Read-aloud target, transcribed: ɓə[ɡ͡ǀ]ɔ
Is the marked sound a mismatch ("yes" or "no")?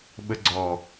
no